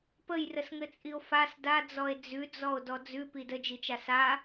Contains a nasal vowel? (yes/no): no